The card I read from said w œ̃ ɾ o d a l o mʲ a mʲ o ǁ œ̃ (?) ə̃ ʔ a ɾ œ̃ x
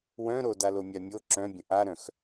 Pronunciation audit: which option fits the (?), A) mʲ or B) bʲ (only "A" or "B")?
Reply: B